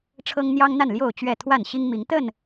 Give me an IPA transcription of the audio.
ʈ͡ʂʰ ɤ˦ ŋ n̪ j ɑ˦ ŋ n̪ a˥˨ n l j o˥˨ ʊ̯ t͡ɕ ɥ ɛ˥˨ t̪ʰ w a˥˨ n ɕ i˦ ŋ m i˨˦ ŋ t̪ ə˥˨ n

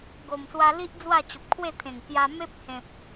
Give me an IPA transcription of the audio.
ɡ o˨˩ m s w a˧ l i˦ ʔ d͡z w a˥˧ t͡ɕ o˨ p̚ kʰ w e˥˧ t̪ʰ ẽ˨˩ ŋ k j a˧ m e˦ p̚ h ẽ˨ p̚

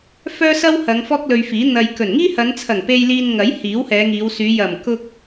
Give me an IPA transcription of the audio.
f œː˥ s ɐ˥ w h ɐ˨˧ ŋ f ɔː˥ k̚ l ɵ˧ ɥ f iː˨˥ n̪ ɐ˨ j k ɵ˨˩ n ŋ iː˥ h ɐ˨˧ n t͡sʰ ɐ˨˩ ŋ p e˧ j l iː˧ n ŋ ɐ˨˥ j h iː˨˥ w h ɛː˨˧ ŋ iː˨˧ w s yː˨˧ j ɐ˨˩ m k ʊ˧ k̚

